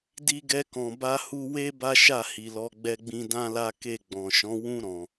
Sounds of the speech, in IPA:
d i˦ ɡ ɛ˦ k ɔ̃˧ b a˦ h u˦ w e˦ b a˦ ʃ a˦˨ h i˨ l ɔ˧ ɡ͡b ɛ˦ ɡ͡b ĩ˦ d ã˦ l a˦ k e˦˨ ɡ͡b ɔ̃˨ ʃ ɔ̃˨˦ w ũ˦ ɾ ɔ̃˧

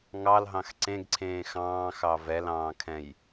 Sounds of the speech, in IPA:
ŋ ɑ l ɦ ɑ̃ x ǀ ẽ ɡ ǀʰ ẽː x ɑ̃ː x ɑ v ɛ l ɑ̃ː kʰ ɛ̃ j

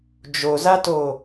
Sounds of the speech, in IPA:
d͡ʒ o z a t o

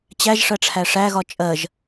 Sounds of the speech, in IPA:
t͡ɕ æ ʒ ʂ ɜ ʈ͡ʂʰ æ ʂ æ ɣ ɒ t͡ʃʼ ɜ ʒ

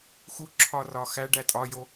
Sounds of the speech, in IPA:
x u ǁʰ ɒ r ɒ x æ ɖ æ tʼ ɒ j o

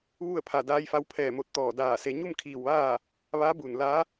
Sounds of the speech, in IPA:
ʋ u˥˨ ə̯ pʰ a˧˩ d aː˧ j f a˧ w pʰ ɛː˧˩ m o˧˩ t̚ t̪ ɔː˧˩ d aː˧˩ s e˩˧ ɲ u˥˨ m kʰ iː˧˩ w ʋ aː˥˨ | ʋ a˧˥ b u˧˩ n l a˧˥

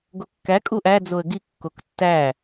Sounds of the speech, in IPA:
ɡ o kː æ kʼ u ʔ æ d͡z o ə̯ ɡ i kː o k tː æ

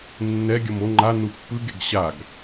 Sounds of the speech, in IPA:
nː ɛ ɡʲ ʌ m o ŋ͡ǃ a n u pː ɯ ɡ e ɡ ɕ a ɡ

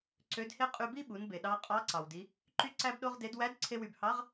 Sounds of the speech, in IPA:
ǀ ø˧˥ d h e˥ qʼ y˧ b i˥ ɓ u˩˧ n b e˩ ɗ ɑ˧ qʼ ɑ˧˥ ǀ ɑ˩ w d i˩˧ | ǃ y˥ ǀ æ˥ b ɗ o˥ ʁ d e˧˥ d w æ˧˥ d ǀʰ e˧ w y˩ b h ɑ˧˥ ʁ

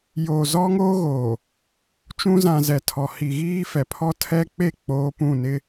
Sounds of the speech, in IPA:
j oː˨ z ɔ˦ ŋ oː˦ ɣ oː˨ | t͡ʃ ũ˦ z ã˨ z ɛ˨ tʰ ɔ˨ h i˨ ɣ iː˦ f ɛ˨ pʰ ɔ˦ tʰ ɛ˦ k͡p e˦˨ k͡p oː˦ p ũ˦˨ n ɪ˦

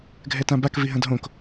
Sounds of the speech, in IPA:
ɡʱ ɛ t ã b a k v i ɦ ɐ̃ d ɦ õ k

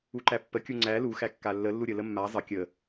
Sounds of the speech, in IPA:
u ǃ æ pː ə kʲ u ŋ͡ǀ æ l u x æ kː a lː ə lː u ɾʲ ə l ə mː a zˤ ə kʲ ə

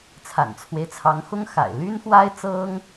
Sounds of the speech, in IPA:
t͡sʰ a̰˨˩ n t͡sʰ w e˦ ɪ̯ t͡sʰ ɑ˧˥ ŋ x ʊ˥ ŋ x a̰˨˩ ɪ̯ l y˥ n x w a˥ ɪ̯ t͡s ɤ˥ ŋ

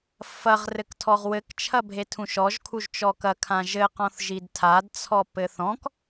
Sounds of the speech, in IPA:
f ɐ ʁ r ɘ k tʰ ɔ ʁ w ɘ k t͡ʃʰ ɐ bʱ e tʰ ũ ʃ ɔ ʒ kʰ u ʒ t͡ʃ ɔ k ɐ kʰ ã ʒ ɘ q ɔ̃ θ ʒ i d tʰ a d t͡sʰ ɔ p ɘ θ ɔ̃ k

